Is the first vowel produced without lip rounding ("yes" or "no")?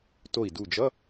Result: no